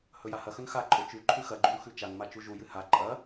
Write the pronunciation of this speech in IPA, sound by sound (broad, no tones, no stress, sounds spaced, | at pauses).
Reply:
h ɵ j a h ɐ x ɵ n x a ǃʼ o t͡ʃ ʉ ǃʰ ʉ x ɐ ɡ͡ǃ u n x ʉ t͡ʃ a n m a t͡ʃ u ʒ u j ɨ h a ǃʼ ɐ